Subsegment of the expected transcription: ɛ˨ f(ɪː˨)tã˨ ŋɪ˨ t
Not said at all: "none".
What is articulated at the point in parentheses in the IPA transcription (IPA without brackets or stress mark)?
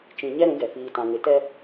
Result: iː˨